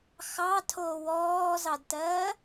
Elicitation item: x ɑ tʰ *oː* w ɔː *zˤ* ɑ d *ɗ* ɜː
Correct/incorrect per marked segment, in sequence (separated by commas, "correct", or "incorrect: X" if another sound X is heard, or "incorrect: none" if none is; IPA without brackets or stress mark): correct, incorrect: z, incorrect: t